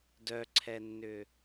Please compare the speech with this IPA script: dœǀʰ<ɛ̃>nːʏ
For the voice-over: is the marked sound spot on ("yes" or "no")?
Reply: no